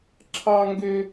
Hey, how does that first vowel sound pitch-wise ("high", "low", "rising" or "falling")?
high